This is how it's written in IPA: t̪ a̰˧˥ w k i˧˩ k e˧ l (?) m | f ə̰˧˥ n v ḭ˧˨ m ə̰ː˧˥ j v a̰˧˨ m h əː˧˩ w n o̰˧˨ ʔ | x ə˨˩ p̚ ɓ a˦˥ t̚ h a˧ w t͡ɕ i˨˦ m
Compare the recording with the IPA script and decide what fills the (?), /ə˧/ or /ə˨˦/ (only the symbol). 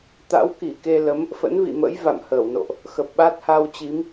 ə˨˦